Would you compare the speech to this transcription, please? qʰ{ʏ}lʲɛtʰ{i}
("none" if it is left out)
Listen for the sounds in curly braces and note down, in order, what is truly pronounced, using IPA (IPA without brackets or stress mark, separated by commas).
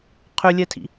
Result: ʏ, ḭ